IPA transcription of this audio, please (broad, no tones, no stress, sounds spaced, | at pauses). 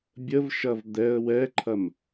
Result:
bʲ ə v ʃ ɐ v d̪ ɛ ə̯ w ɛ ǃʰ ɐ m